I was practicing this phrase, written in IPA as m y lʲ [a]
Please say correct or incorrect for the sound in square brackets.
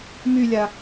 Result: correct